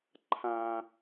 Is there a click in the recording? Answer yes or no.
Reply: yes